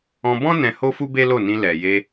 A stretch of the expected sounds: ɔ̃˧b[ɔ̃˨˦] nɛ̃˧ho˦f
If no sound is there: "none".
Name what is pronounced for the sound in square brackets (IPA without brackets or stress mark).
ɔ̃˦